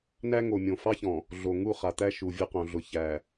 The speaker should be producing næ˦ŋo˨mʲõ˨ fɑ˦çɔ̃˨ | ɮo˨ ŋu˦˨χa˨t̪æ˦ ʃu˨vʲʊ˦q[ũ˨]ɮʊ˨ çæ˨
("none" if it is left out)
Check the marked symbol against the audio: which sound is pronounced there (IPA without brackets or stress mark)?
õ˨